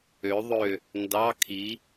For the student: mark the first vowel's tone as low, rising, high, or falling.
rising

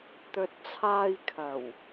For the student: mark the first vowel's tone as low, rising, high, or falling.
low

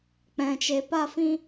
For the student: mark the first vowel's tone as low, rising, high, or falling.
low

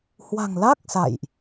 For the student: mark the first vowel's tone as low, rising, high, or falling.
low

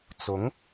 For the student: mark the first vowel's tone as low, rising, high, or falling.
rising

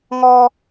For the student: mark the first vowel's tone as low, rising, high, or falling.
high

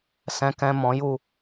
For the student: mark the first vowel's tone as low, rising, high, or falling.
low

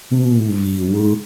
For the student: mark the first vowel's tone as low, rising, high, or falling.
falling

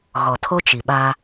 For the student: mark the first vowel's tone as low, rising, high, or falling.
low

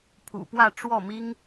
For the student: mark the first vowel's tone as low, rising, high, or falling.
low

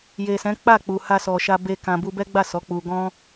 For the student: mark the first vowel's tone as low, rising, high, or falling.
low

